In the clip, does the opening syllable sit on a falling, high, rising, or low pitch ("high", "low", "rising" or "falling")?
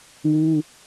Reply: high